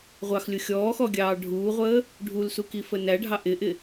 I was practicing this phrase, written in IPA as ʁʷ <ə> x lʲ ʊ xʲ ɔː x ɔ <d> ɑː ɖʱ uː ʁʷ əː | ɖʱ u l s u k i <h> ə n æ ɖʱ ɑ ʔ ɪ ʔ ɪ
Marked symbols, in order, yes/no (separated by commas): no, no, no